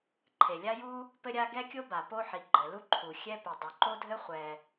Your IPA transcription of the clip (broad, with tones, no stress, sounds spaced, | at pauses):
ǃʰ e˩ lʲ a˥ j u˥ | p ɘ˥ ɾʲ a˥ ɡ ɛ˥ kʲ o˥ b a˩ p o˥ ħ i˩ ɡ͡ǃ ɘ˩ l u˥ ǃʰ u˩ xʲ ɛ˥ p e˩ dˤ o˩ ǃ o˥ dʱ ɘ˥ χʷ ɛ˩